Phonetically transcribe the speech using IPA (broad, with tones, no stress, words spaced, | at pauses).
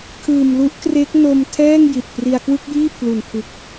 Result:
kʰɯː˨˩mlu˦˥ʔkre˦˥k̚no˧m tʰɛː˥˩ŋ ji˨˩t̚pri˧a̯kwɯ˥˩k̚jiː˥˩ pʰlu˨˩npʰɯ˨˩k̚